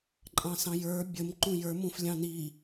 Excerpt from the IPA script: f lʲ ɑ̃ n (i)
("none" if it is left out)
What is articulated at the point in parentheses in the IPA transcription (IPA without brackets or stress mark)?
i